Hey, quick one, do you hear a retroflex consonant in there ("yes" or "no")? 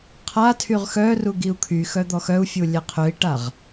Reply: yes